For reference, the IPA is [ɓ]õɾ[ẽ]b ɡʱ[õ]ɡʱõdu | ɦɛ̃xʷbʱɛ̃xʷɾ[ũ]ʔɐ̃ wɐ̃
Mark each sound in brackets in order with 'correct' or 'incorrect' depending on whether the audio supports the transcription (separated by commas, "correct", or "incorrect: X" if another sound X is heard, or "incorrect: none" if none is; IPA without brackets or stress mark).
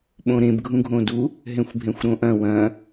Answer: correct, correct, incorrect: ũ, incorrect: õ